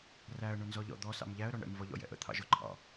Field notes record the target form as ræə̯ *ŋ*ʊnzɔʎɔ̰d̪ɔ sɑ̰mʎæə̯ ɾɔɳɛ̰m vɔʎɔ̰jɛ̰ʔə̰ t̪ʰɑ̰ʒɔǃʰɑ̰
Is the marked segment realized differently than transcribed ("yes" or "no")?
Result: yes